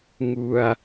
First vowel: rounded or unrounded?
rounded